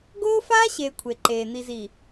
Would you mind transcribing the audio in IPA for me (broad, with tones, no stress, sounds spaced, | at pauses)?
ɡ oː˦ f aː˦ ɕ eː˨ kʷʰ e˨ ǃ eː˨ n̪ i˨ z iː˨